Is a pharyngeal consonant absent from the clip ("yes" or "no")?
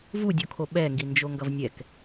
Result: yes